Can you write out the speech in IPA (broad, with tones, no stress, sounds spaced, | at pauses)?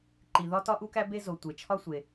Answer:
ǃ i˩ ð ɒ˥ t ɒ˥ ʔ u˥ k æ˥ b e˥ z o˩ tʷ e˩ t͡ʃʰ ɒ˥ sʷ e˩